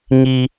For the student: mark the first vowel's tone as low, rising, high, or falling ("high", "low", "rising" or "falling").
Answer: high